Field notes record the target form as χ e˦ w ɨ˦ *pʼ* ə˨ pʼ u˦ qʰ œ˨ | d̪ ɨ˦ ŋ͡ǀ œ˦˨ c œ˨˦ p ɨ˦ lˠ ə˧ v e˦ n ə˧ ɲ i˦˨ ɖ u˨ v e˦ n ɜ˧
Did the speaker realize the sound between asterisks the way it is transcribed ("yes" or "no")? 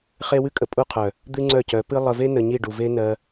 no